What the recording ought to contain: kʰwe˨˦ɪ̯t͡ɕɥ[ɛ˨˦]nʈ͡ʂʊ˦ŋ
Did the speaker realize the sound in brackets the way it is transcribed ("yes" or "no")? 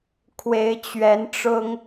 yes